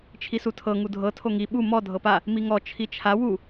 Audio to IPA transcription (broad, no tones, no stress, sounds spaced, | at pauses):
t͡ʃʰ i s u tʰ ɤ ŋ u dʱ ɤ tʰ o ŋ i ɓ u m ɔ dʱ ɤ p a | m i ŋ ɔ t͡ʃʰ i t͡ʃʰ a w u